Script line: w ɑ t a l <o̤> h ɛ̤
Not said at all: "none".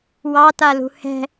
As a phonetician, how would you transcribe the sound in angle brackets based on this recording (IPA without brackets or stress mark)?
ṳ